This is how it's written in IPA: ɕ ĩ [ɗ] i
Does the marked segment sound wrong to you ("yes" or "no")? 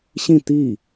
yes